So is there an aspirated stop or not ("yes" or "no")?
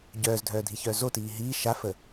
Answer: no